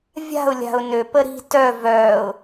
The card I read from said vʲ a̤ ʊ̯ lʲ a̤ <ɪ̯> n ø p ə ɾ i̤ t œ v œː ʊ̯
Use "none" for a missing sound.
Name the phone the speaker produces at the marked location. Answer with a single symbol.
ʊ̯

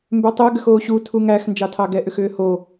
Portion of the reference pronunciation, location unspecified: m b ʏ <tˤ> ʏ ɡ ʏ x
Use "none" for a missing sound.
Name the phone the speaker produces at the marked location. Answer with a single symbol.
tˤ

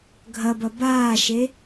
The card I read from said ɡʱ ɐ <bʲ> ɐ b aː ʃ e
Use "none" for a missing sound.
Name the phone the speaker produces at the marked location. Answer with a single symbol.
b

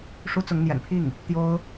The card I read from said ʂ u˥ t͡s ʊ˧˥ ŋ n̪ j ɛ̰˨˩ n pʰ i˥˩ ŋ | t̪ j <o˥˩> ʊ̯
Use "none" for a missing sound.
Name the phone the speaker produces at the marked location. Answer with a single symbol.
o˥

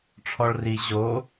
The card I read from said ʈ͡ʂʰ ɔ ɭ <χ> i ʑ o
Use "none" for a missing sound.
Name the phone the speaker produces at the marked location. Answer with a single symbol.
r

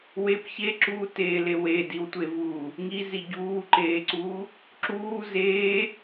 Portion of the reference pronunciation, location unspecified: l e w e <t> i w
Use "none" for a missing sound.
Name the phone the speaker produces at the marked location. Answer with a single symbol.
d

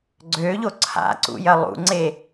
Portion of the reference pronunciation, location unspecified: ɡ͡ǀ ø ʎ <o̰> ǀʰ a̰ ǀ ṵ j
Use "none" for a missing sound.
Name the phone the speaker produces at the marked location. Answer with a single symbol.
o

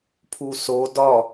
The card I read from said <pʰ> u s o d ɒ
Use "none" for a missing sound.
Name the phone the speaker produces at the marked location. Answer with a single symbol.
pʰ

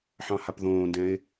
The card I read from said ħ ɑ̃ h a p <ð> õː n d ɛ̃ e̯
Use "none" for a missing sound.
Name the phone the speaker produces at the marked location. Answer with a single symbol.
ð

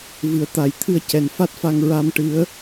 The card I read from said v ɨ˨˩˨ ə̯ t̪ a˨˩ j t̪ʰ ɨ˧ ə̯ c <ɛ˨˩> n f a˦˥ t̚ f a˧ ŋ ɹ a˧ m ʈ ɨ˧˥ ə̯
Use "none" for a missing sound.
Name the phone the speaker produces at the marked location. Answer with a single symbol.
ɛ˨˩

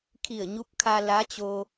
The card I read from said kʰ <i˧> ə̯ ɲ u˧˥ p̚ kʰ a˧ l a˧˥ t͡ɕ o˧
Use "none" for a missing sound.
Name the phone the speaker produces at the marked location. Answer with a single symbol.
i˧˩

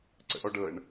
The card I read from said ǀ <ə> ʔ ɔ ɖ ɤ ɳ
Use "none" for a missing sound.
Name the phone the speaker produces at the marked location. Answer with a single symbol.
ə̰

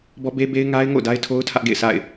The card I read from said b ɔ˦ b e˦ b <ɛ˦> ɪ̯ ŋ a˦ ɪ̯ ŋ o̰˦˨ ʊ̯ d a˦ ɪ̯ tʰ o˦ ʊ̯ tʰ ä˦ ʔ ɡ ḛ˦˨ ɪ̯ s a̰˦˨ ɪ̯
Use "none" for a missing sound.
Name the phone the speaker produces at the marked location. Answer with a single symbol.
e˦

